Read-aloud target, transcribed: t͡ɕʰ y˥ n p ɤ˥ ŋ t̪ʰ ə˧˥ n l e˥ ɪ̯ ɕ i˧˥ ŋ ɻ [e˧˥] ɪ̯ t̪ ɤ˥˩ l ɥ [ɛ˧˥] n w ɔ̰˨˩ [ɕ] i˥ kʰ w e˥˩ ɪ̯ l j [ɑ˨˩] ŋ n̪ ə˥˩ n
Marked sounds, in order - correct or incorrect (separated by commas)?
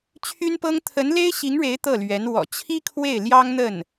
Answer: correct, correct, incorrect, incorrect